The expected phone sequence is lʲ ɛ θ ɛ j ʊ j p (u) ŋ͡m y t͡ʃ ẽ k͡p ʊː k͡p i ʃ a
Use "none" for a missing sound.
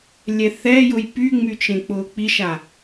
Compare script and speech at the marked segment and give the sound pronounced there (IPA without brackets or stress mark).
y